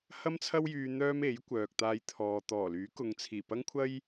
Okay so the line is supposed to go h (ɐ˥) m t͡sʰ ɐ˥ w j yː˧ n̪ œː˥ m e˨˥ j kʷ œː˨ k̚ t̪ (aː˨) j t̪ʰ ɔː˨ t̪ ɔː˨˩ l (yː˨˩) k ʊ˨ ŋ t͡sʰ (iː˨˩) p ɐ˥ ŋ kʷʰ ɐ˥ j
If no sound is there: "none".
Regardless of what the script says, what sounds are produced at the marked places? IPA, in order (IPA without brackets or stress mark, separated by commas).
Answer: ɐ˥, aː˧, yː˨˥, iː˨˩